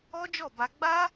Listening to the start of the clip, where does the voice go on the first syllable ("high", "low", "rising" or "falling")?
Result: high